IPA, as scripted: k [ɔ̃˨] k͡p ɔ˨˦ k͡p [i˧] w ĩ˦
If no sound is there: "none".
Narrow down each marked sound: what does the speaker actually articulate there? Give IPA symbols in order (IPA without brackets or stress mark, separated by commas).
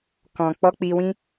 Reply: ɔ̃˨, i˧